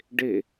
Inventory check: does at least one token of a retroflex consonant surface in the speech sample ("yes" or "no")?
yes